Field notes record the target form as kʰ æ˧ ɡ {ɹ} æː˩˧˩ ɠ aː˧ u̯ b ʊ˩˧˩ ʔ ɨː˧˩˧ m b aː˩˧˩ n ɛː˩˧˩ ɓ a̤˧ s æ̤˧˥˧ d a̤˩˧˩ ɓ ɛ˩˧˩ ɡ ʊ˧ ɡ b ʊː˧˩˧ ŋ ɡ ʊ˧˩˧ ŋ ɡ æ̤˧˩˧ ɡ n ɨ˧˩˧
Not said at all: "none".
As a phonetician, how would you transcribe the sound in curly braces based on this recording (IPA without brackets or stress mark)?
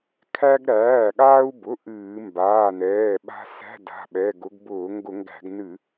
ɾ